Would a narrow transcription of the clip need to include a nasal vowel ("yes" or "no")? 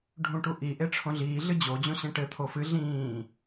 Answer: yes